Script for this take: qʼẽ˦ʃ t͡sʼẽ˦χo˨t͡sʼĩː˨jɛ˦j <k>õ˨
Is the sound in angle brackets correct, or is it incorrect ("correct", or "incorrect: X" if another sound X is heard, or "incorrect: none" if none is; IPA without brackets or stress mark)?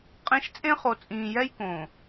correct